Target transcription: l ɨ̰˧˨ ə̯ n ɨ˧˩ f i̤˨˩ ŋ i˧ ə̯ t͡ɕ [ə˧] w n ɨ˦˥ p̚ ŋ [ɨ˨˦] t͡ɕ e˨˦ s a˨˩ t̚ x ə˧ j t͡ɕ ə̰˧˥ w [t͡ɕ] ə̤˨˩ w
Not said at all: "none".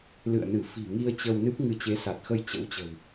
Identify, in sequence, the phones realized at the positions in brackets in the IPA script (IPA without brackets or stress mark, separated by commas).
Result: ə˧, ɨ˨˦, t͡ɕ